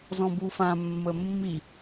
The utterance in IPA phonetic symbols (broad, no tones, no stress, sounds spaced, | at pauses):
z ɔ̃ b u f ã mː ə mː i